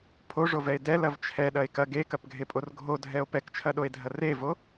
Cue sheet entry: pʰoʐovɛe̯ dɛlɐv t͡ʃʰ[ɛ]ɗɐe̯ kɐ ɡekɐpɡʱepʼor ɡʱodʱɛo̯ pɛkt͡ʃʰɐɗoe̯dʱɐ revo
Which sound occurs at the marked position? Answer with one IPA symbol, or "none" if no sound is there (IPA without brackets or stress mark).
ɛ